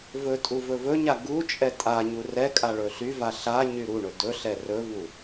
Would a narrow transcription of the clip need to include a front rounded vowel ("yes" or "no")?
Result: yes